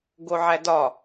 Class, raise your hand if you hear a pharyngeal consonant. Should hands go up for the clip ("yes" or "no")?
yes